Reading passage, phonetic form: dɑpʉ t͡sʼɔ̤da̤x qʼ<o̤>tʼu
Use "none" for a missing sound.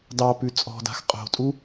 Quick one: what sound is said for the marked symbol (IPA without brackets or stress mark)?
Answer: o̤